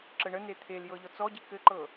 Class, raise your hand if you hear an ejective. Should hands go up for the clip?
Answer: no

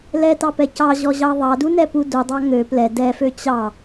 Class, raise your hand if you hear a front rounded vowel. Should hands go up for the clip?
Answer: yes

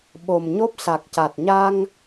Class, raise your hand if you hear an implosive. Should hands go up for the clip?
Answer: yes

